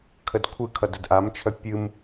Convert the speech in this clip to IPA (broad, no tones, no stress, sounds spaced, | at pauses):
kʰ ə d kʷʰ ɨ kʰ ʌ d ə d ʔ a m t͡ʃʰ œ pʲ ɨ m